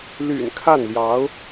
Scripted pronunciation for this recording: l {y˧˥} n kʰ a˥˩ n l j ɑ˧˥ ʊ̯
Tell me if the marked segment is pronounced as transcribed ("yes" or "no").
no